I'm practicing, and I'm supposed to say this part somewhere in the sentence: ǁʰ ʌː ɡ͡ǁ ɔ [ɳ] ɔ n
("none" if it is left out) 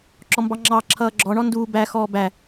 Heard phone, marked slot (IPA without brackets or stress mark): ɳ